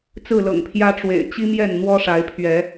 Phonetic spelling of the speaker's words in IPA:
t͡s ɹ̩˥˨ l ɤ̰˨˩ ŋ pʰ j ä˦ ʈ͡ʂ w ḛ˨˩ ɪ̯ t͡ɕ i˦ m j ɛ˥˨ n n̪ w ɔ˦ ʂ a˨˦ ɪ̯ pʰ ɥ ɛ˨˦

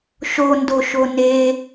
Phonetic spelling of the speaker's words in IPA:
ʃ o n d o ʃ o n e

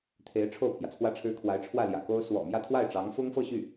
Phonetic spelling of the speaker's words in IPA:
t̪ʰ e˧˥ ɪ̯ ʈ͡ʂʰ o˥˩ ʊ̯ pʰ j ä˩ t͡sʰ w ä˥˩ ʈ͡ʂʰ ɻ̩˥ kʰ w a˧˥ ɪ̯ ʈ͡ʂʰ w ä˥˩ l j ä̰˨˩ k o˥ ʊ̯ s w ɔ̰˨˩ m j ä˥˧ t̪ʰ w a˥˩ ɪ̯ ʈ͡ʂ ɑ˧˥ ŋ f ʊ˥ ŋ f ɤ˥˧ ɕ y˥˩

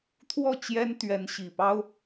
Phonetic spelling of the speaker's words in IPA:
t̪ʰ w ɔ˥˨ t͡ɕ j ɛ˦ n t̪ ɥ ɛ˨˦ n ɕ i˨˩ p ɑ˦ ʊ̯

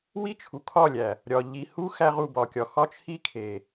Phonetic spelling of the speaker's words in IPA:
w i˦ t͡ʃʰ u˨ kʰ ɒ˦˨ lʲ æ˨ | ɾʲ ɒ˨ ʎ i˨ h u˦ x æ˦ ʁ u˨ b ɒ˨ kʲ ɒ˨ x ɒ˦ t͡ʃʰ i˦ kʰ e˨

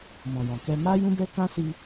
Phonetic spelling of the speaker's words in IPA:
m ɔ̃˨ j ɔ̃˨ k ɛ˧ m a˦ j ũ˦ b ɛ˦ k ã˦ s i˧

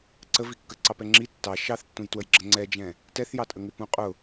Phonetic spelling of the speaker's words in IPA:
ǀ ə v i kː ə ǀ ɑ p ɛ ŋ͡ǁ i tː ɑ ʃ ɑ θ tː ũ j t w ə j ɡ͡ǁ ə ŋ͡ǀ ɛ d͡ʒ ɛ̃ | t ɛ θ j ɑ tʼ ə ŋ ɪ p ũ qʼ ʊ

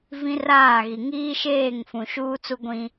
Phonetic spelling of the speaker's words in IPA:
v ĩ˦ r aː˦˨ ɣ i˨ ŋ iː˦ ʃ eː˦˨ ŋ f ũ˨ ʃ uː˦ t͡s u˦ ɡʷ ĩ˦

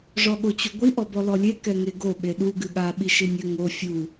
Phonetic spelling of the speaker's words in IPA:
ʐ ɔ ɠ o t͡ɕ u ɡʷ i ʔ ɔ b ɔ l ɔ lʲ e k ɛ ŋ e ɡ o ɓ e ɗ u ɡ ɨ ɠ a ɓ i ʃ i nʲ ɘ ŋ o fʲ u

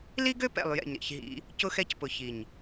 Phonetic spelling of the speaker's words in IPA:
l i˦ ɡ ø˦ p ɛ̰˨ lˠ j ɛ̰˨ ɲ ɾ ḭ˨ ç ɦ ḭ˦ | c ʊ˦ x ɛ˦ c p ʊ˨ ç i˨ ɲ

